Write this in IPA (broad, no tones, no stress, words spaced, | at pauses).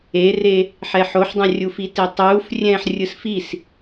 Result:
ere | ħɛħoħdˤãrʲu fitetˤuːf rʲɛ̃ːħrʲɯsfis